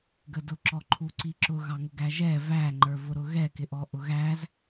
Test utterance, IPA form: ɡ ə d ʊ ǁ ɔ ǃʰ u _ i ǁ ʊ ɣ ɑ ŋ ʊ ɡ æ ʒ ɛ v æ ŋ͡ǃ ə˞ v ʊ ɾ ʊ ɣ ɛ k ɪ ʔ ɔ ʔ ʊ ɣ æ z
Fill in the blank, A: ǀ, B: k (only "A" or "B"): A